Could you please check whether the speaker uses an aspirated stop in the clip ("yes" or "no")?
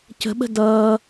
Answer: no